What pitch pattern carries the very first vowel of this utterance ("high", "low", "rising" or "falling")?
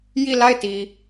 falling